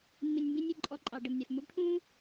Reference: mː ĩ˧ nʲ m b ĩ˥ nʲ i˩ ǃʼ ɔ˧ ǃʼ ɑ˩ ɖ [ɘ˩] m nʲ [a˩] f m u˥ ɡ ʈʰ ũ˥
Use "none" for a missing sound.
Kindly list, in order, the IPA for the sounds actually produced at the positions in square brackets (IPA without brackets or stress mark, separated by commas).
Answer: ɘ˩, a˩